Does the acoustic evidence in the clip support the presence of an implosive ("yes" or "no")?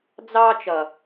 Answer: no